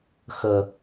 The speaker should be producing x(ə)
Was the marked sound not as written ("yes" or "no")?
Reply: no